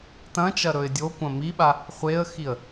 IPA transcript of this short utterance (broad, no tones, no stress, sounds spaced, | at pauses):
t ɐ̃ t͡ʃ ɐ ɾ ɵ ɪ̯ dʲ o kʷ ɐ̃ m i ɓ a | χʷ e ə̯ x i ə̯